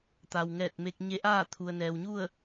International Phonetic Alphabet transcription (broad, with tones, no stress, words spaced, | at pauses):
t̪a˩wŋɛː˧˩t̚me˧k̚ ɲe˧˥ʔaː˥˨ t̪ʰu˩ə̯nɛː˩wɲu˥˨ə̯